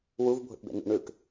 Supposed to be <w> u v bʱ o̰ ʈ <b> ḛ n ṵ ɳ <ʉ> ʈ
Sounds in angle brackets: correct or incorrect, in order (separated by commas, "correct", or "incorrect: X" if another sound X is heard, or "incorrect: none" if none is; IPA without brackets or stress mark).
correct, correct, correct